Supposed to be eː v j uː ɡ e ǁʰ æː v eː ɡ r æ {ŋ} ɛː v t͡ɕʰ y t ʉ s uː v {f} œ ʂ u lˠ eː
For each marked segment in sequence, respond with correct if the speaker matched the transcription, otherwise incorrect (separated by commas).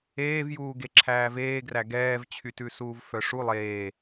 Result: incorrect, correct